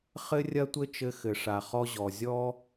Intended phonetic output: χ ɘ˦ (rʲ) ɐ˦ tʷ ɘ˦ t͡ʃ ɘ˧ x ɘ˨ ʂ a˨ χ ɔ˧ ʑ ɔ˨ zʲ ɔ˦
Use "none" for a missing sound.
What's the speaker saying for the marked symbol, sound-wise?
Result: rʲ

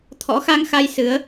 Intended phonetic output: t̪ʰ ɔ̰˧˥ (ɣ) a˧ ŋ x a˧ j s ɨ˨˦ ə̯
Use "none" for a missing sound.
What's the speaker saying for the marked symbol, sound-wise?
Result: x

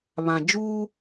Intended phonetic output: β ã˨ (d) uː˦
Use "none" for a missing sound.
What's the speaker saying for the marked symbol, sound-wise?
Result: d͡ʒ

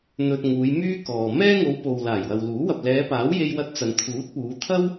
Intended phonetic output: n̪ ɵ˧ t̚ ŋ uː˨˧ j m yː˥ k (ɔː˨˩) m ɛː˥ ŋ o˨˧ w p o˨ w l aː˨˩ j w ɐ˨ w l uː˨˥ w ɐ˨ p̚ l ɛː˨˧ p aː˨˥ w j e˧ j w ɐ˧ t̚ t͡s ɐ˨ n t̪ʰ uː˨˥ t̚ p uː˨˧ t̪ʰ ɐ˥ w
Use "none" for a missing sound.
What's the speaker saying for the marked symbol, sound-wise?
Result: ɔː˨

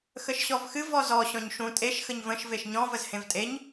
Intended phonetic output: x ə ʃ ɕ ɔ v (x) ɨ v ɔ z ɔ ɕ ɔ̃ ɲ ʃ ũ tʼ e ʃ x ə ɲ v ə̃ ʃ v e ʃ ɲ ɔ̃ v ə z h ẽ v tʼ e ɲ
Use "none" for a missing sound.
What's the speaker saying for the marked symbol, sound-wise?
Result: x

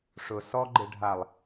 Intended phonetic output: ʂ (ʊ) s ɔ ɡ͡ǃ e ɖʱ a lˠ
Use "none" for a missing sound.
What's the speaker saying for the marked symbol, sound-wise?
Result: ʊ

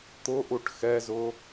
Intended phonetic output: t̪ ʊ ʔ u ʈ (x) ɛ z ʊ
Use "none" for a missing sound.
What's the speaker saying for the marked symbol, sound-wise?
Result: x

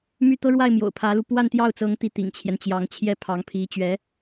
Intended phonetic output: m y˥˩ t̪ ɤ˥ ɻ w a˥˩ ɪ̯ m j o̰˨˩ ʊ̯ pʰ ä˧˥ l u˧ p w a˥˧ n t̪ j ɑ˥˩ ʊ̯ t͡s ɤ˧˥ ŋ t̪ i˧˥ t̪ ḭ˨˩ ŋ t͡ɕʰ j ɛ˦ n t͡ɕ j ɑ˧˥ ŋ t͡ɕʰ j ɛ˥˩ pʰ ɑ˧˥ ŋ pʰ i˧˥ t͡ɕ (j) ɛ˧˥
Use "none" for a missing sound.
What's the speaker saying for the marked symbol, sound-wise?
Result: ɥ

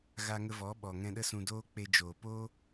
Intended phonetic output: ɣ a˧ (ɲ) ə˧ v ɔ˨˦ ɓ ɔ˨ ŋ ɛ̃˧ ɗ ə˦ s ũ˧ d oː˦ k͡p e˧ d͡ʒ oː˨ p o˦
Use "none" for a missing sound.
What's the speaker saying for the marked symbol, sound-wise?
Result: ŋ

